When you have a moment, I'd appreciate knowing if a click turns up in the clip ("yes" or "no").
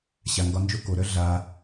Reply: no